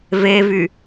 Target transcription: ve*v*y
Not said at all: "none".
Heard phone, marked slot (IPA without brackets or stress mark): v